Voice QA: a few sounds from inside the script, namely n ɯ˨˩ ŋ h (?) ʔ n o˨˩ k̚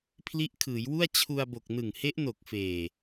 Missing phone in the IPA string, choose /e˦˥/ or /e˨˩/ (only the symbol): e˦˥